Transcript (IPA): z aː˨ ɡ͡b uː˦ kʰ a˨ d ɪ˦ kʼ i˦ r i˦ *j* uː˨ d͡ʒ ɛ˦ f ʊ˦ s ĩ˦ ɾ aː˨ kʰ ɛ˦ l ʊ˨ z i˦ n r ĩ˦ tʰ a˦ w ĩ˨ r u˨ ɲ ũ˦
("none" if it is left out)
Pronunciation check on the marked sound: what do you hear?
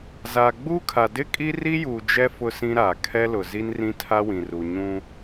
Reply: j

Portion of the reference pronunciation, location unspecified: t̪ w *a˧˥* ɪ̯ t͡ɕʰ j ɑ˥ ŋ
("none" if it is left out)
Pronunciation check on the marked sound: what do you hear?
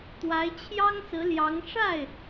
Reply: a˧˥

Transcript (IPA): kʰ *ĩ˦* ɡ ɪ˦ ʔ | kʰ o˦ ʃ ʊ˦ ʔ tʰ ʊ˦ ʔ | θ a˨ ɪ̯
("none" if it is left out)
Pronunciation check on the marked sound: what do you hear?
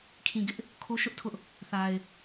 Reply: ĩ˨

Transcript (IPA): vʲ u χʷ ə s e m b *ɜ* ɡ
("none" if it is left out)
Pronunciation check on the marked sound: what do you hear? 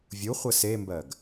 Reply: ɜ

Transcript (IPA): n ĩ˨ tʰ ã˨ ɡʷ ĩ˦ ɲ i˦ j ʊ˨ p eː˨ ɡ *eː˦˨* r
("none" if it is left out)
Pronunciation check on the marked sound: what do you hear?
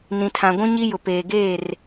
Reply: eː˦˨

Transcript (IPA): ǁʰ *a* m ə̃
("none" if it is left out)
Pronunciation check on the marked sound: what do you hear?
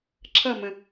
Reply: ʌ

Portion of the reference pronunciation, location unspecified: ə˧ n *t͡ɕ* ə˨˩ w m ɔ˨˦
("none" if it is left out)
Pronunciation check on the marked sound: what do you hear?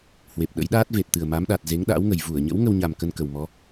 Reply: k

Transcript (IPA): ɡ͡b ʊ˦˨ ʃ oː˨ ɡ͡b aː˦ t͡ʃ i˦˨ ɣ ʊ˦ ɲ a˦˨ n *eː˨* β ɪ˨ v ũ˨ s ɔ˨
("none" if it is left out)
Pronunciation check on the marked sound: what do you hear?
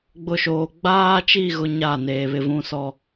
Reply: eː˨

